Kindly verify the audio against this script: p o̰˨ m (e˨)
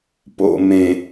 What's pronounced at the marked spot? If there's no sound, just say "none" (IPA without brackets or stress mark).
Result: ẽ˨